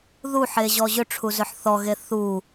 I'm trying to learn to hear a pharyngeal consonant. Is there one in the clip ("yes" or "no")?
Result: yes